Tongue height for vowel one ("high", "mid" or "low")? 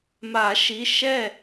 low